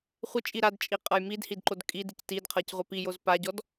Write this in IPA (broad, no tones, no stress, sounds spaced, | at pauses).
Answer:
χʷ ɪ t͡ʃʼ i ɾ a d t͡ʃʼ i qʼ ɤ j m i d h i d ǃ o d kʼ i d i c t i d qʰ ɤ c ʁʷ a p i j o z p a ɟ ɔ d